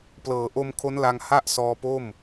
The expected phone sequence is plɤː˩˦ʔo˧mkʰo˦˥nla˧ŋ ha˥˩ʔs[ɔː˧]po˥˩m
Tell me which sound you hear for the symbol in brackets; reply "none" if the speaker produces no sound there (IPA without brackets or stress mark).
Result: ɔː˧